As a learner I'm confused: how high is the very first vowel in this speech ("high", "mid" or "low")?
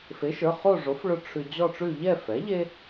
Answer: mid